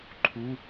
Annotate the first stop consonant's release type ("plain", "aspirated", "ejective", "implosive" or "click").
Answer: click